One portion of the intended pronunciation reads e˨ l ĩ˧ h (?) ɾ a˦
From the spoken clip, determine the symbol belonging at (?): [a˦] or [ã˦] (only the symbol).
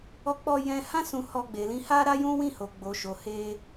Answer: a˦